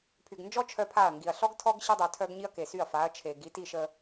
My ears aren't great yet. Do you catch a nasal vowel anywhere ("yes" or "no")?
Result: no